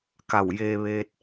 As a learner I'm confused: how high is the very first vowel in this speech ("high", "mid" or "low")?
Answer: low